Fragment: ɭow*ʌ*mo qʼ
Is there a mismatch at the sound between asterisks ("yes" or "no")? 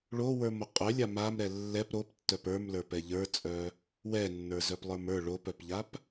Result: yes